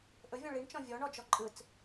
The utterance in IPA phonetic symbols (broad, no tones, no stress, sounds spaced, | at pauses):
ʔ ɵ vʲ ɔ̃ ɭ i ɳ t͡ʃ ɔ̃ vʲ ɔ ɳ ɔ d͡ʒ ɔ ǃʼ ɯ t͡s